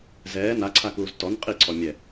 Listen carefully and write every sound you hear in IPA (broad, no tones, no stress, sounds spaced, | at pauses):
z ɛː n a ǀʰ a k uː z t ɔ n qʼ i ǀʰ ɔ mʲ ɛ